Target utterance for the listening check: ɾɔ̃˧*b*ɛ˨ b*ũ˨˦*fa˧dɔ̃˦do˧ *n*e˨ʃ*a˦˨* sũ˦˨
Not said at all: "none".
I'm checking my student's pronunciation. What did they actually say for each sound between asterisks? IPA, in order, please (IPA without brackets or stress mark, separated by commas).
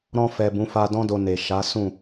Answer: f, ũ˨˦, n, a˨˦